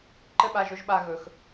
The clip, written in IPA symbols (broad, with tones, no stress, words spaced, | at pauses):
ǃɘ˦ɓa˧ʒɵ˦ʒɓa˧ ɣɵ˧x